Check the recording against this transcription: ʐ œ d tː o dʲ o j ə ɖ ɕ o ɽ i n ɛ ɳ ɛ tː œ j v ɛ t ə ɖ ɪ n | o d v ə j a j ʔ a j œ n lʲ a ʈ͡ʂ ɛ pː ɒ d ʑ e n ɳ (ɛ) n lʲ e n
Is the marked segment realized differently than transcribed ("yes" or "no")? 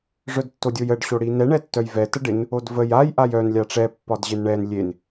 no